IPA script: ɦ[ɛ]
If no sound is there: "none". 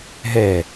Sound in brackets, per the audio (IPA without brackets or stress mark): ɛ